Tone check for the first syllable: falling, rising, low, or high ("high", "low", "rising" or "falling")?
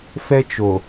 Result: high